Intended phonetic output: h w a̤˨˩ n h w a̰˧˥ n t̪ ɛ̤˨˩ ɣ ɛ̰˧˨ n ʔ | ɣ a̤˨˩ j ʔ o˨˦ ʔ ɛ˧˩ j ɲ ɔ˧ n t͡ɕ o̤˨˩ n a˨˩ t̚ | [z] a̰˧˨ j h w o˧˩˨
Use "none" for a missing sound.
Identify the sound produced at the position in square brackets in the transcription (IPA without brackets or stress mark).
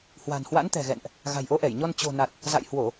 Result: z